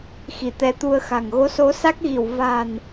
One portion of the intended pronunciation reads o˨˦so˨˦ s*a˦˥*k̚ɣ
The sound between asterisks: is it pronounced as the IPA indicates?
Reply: yes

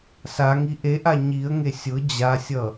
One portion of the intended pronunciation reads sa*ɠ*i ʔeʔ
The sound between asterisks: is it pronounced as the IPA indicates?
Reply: no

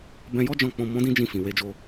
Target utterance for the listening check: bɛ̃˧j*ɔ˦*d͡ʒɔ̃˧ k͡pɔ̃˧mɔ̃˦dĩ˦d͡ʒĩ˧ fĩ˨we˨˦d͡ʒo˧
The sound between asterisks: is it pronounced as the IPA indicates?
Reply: yes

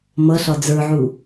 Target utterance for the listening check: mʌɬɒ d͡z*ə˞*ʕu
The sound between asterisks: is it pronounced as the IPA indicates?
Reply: yes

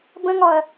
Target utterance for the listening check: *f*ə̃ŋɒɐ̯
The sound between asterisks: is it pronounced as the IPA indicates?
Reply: no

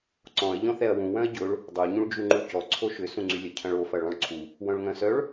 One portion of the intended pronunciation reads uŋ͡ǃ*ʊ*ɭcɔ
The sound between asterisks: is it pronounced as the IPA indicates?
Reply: no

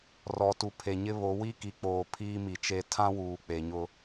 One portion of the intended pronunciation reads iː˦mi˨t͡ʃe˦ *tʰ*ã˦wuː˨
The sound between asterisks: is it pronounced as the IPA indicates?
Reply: yes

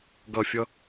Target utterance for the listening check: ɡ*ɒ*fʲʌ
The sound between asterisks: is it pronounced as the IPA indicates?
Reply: no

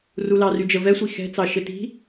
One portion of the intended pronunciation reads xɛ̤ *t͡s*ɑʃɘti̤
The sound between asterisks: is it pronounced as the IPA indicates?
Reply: yes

